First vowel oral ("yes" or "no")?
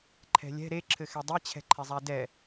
yes